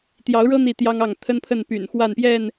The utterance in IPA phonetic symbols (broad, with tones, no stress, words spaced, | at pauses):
t̪jɑ˨˦ʊ̯ɻɤ˦ n̪i˥˨t̪jɑ˦ŋɑ˥˨ŋ t̪ʰə˦npʰə˥˨n py̰˨˩nxwa˥˨npjɛ˥˨n